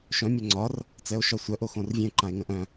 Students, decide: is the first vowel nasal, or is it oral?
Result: nasal